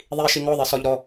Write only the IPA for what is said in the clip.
ðˤ i ʃ i ŋ ɔ ðˤ i s ɔ ʎ ɾ ɔ

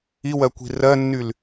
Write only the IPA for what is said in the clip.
i w ɜ kʷ i̤ r ɜ nː y l

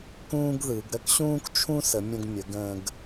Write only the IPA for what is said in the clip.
k ũː˥ ɡ ð ɯ˩˧ ɡ ɾ ə˥ k ɕ ũː˥ k t͡ʃʰ ũ˥ s ə˩˧ mʲ ə̃˧ ɡ mʲ ə˩˧ ɡ ə̃ː˧ ɡ

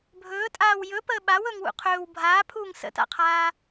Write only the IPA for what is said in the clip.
bʱ ɵː tʼ aː w j ɵ p əː ɓ a w ɵ ŋ w ṵ qʰ ɵː w bʱ aː pʰ uː ŋ s ə̰ t a̰ qʰ aː

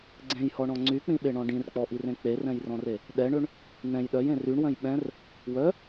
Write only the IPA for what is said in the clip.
ɡ͡ǀ ẽ j h ɔ ɳ ɔ̃ ŋ͡ǀ y k͡p ĩ ɓ e ɳ ɔ̃ ɖ ĩ r k͡p ɔ ʔ i r ẽ k͡p e r ɛ̃ j r ɔ̃ r e | ɗ ɛ ɳ ø ɳ | n̪ ɛ̃ j ɗ œ j ẽ r y ɳ w œ̃ j ɓ ɛ̃ r | w œ

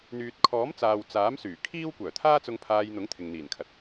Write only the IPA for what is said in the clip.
n̪ yː˨ t̚ kʰ ɔː˨˥ m t͡s aː˨ w t͡s aː˨˥ m s yː˨˩ kʰ iː˥ w kʷ œː˨˩ t̪ʰ aː˥ t͡s ʊ˧ ŋ pʰ aː˧ j n̪ ʊ˨˥ ŋ t̪ʰ ɪ˨ ŋ n̪ iː˨˩ n kʰ ɐ˨ t̚

